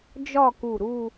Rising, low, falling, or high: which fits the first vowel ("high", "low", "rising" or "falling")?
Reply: falling